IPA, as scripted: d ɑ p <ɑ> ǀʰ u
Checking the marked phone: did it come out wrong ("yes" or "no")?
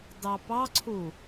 no